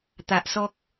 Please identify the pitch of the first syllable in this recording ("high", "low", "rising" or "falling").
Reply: low